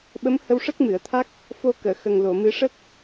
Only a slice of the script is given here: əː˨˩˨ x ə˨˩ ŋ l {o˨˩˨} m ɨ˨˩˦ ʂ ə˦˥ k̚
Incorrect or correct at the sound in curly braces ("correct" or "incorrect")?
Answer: correct